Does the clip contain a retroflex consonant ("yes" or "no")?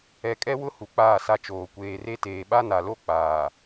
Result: no